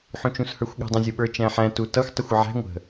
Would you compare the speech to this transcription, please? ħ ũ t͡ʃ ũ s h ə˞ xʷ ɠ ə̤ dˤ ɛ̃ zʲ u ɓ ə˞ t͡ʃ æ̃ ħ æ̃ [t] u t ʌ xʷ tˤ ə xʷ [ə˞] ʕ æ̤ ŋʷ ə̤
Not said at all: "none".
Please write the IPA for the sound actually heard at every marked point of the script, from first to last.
t, ʌ

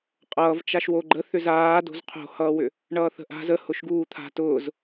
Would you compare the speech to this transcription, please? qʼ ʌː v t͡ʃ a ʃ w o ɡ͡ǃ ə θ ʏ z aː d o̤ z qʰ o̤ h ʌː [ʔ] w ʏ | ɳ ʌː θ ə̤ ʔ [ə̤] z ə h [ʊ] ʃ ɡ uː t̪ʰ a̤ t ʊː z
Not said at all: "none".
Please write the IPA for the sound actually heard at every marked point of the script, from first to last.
none, a̤, ʊ

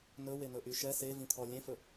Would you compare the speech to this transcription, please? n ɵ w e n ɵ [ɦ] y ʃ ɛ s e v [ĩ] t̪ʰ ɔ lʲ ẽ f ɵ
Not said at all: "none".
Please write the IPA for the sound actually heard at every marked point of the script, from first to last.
ʔ, ĩ

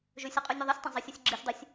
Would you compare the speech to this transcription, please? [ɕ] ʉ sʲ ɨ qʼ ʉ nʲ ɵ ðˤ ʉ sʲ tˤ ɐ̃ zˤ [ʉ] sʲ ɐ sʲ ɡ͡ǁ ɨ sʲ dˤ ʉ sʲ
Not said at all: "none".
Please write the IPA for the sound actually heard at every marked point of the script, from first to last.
ʒ, ɨ

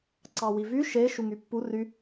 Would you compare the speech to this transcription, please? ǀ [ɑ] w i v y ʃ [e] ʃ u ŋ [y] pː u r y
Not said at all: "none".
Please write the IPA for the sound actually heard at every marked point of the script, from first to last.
ɑ, e, y

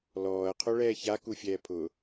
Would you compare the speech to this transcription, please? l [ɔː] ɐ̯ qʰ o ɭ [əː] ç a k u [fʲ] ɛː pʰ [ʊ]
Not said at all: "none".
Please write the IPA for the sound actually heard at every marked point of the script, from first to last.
ɔː, ɛː, fʲ, ʊ

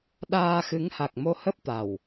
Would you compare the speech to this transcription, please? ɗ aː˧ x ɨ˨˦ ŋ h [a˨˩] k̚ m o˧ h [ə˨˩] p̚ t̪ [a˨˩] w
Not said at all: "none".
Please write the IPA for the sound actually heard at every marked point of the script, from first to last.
a˨˩, ə˦˥, a˨˩

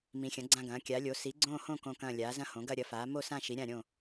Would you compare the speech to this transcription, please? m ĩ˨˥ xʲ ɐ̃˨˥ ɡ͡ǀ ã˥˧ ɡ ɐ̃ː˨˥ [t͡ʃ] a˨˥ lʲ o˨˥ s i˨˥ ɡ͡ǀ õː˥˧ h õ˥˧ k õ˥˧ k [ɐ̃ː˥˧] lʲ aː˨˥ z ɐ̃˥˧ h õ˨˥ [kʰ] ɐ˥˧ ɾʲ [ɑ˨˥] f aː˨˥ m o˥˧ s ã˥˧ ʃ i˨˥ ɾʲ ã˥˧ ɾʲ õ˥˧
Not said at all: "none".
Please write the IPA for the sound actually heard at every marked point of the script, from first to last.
kʲ, ɐ̃ː˥˧, ɡ, ɐ˨˥

